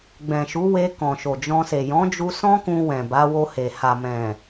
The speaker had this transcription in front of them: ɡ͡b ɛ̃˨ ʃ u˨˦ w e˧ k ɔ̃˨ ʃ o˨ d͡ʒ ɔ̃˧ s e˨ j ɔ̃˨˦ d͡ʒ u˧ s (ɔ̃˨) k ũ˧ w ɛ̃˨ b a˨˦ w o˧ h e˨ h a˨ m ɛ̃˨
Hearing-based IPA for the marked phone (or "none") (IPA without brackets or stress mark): ɔ̃˦